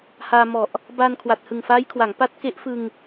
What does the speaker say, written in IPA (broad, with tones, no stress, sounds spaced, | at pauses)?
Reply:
h aː˧ m ɔ˨˩ ʔ | b a˧ n kʰ w a˨˩ t̚ h ɯ˨˩ ŋ f aː˦˥ j kʰ w a˩˦ ŋ p a˦˥ t̚ k e˦˥ ʔ f ɯ˧ ŋ